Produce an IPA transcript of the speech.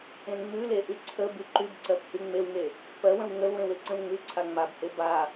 ẽ ŋ͡m ʉ l e ʔ y ǀʰ ə b y ǃ y b ǀ ɜ p h y ŋ͡m e w ŋ e | p ɜ w ə̃ w ŋ ə l w ẽ w e ǀ ə̃ l ŋ͡m ʉ ǀʰ a ŋ͡m a b h e b a

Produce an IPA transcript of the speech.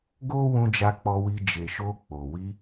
ɡ o˦ w ũ˧ d͡ʒ a˧ k͡p ɔ˧ w i˧ d͡ʒ e˨ ʃ o˧ k͡p o˨ w i˧

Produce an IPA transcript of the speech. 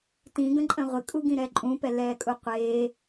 t ĩ ɡ ə̃ ǃʼ ə̃ ʁʷ ɪ kʼ u ɡ ĩ ɾ ɛ ǃʼ ũ p ɛ l ɛː kʼ u qʷ eː

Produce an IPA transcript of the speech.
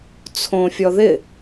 t͡sʰ õ fʲ ɔ ð ɪ

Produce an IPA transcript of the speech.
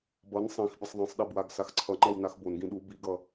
b ʌ n sˤ ĩ x bʲ ʌ sˤ ðˤ ĩ sˤ ɗ e b w a ɡ s a x ǀʰ ʌ ŋ͡ǃ ʌ w n a x b o n ɡ ĩ ɗ u b i ɡ ʌ

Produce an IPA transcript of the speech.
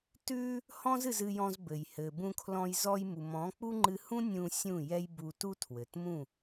t ʉ˧ | h ɔ̃˦ z ɨ˧ z ɨ˧ j ɔ̃˧ z b ɘ˨ j h ɘ˨ b ũ˧ kʰ l ɔ̃˧ j z ɔ˧ j m u˨ m ɔ̃˨˦ k͡p u˦ ŋ͡ǃ ɨ˧ h ũ˦ nʲ ũ˧ sʲ ũ˦˨ j ɛ˦ j b u˧ t u˦ tʰ w ɘ˨ t m ũ˦˨

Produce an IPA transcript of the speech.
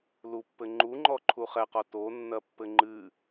l u pː ɘ ŋ͡ǃ u ŋ͡ǃ ɔ ǃʰ u χ ɛ q ɔ t o nː ɐ pː ɘ ŋ͡ǃ ɨ

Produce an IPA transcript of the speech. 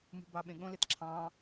m ṳ b ɑ ɓ ẽ ɠ õ l e t ǁʰ ɑ̃ː

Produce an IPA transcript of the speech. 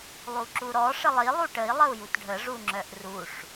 lˠ u ǁ u ɾ ɔ ʂ ə lˠ i lˠ u ʈ ə i̯ lˠ ə u̯ j u t ɖʱ ə ʐ u ŋ͡ǁ œ ʔ r u ʂ

